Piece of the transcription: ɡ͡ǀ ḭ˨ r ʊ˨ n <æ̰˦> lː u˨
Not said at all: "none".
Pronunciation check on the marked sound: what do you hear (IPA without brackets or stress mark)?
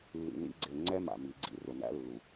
æ̰˦